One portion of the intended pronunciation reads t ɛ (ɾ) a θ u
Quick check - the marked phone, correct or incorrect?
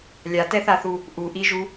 incorrect